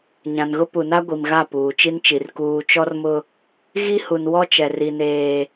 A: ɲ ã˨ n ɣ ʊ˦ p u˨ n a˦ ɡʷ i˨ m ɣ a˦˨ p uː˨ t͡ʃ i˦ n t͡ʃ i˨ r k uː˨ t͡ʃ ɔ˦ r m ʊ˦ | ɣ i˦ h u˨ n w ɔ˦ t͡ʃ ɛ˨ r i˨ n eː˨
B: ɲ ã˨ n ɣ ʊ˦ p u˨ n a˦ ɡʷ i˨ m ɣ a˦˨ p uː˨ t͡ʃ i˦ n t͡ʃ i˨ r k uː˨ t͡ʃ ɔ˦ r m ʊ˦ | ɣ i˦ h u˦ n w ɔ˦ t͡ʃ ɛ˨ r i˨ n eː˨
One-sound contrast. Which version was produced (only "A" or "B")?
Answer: A